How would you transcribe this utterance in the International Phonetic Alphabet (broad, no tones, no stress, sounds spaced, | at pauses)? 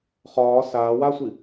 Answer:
χ ɒː s aː w a sʷ i